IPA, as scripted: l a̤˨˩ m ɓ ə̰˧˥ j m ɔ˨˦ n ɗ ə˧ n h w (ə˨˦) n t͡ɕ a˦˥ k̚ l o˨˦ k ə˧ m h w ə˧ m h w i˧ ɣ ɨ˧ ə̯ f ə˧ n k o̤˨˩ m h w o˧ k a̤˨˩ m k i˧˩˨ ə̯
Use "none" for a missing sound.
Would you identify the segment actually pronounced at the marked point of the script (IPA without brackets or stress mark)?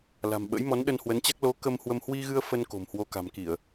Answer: ə˨˦